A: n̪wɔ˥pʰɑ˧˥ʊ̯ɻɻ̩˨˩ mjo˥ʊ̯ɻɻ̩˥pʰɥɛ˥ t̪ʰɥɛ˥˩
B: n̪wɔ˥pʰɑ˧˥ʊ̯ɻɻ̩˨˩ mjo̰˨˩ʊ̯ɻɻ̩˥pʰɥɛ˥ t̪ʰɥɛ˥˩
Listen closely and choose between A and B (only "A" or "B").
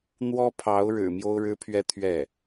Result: A